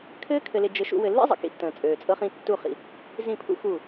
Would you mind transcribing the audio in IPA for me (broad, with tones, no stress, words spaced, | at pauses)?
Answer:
kʰɘː˦kʰɘ˨lɪ˨ d͡ʒɘ˦ʃṵ˦ wɘ˨lːḭ˦zˤə̰˨ kḭ˦tːə̃ː˨ t͡sʼøː˨t͡sʼɤ˦χĩ˦ tːu˦˨χḭ˨ | zĩ˦˨pʰṵ˦ xu˦˨